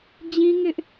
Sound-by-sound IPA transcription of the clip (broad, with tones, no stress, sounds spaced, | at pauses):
d͡ʑ ĩ˦ ŋ ɪ˦ ʔ